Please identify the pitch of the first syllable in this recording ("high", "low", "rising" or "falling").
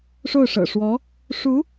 falling